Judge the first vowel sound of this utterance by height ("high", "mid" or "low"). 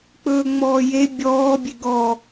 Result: mid